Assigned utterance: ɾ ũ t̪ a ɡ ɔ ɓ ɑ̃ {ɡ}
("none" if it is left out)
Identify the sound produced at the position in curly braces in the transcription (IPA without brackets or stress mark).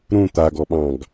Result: ɡ